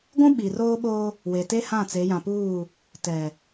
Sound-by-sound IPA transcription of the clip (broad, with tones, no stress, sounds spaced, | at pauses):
ɡʷ ũ˦ ɓ i˨ r oː˦ ɓ oː˦ | w e˨ t e˦ h ã˦˨ t͡s e˨˦ j ã˨ p uː˦˨ | t ɛ˨